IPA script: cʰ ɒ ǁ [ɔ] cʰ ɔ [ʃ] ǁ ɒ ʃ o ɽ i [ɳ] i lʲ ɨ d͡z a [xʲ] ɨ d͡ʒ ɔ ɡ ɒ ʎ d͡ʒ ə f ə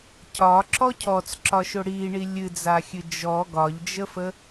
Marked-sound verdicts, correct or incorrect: correct, incorrect, correct, correct

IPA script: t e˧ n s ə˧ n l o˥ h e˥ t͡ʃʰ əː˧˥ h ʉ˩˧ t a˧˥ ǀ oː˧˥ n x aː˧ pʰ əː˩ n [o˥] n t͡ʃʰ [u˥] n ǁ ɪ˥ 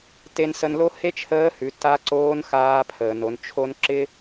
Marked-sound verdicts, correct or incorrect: incorrect, incorrect

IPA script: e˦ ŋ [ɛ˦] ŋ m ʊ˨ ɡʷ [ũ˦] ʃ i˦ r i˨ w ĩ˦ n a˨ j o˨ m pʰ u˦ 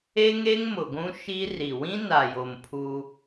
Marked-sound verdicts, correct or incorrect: incorrect, correct

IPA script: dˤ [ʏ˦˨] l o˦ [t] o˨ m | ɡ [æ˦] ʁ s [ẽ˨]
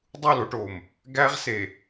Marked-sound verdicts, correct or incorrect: incorrect, incorrect, correct, incorrect

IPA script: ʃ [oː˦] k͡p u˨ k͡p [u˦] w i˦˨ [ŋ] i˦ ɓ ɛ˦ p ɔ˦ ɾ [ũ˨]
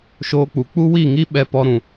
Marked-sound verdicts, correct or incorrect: correct, correct, correct, correct

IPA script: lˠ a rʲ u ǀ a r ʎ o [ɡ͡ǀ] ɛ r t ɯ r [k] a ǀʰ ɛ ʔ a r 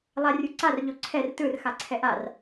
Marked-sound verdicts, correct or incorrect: incorrect, incorrect

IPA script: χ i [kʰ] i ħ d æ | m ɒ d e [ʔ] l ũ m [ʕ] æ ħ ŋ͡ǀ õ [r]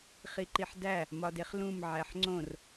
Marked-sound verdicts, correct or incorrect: incorrect, incorrect, correct, correct

